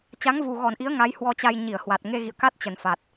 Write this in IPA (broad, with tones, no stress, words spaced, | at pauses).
t͡ɕa˨˦ŋvu˨˩ɣɔ˧˩nʔi˨˦ə̯ ŋa˨˦jhwɔ˧t͡ɕa˧j ɲi˧˩ə̯hwa˨˩t̚ ŋe˧ɣḭ˧˨ə̯ka˦˥t̚ t͡ɕə˨˩nfa˨˩t̚